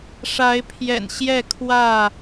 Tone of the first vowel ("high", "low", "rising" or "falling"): rising